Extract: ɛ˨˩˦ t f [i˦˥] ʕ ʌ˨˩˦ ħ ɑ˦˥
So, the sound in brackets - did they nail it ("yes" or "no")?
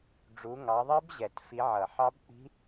no